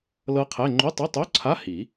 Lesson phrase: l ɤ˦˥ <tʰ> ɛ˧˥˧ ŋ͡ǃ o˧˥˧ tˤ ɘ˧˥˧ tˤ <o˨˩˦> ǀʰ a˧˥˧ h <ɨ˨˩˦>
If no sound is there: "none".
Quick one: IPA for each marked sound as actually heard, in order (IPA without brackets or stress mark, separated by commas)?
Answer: qʰ, o˧˥˧, i˨˩˦